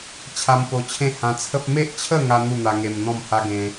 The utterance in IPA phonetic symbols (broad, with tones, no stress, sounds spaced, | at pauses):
t͡ɕʰ a˧ m p o˧ t͡ɕʰ ẽ˥˧ h ã˧ t͡sʰ ə˦ p̚ m e˦ ʔ t͡ɕʰ ə˥˧ ŋ a˦ n̪ u˥˧ n̪ a˧ ŋ e˧ m n̪ ɔ̃˥˧ m h a˦ ɡ ẽ˦